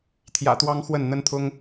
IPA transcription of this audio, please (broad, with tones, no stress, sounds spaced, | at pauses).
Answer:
t̪ʰ j ä̰˨˩ t̪ w ɑ˦ ŋ x w ə˥˨ n n̪ ə˦ n t̪ʰ ʊ˦ ŋ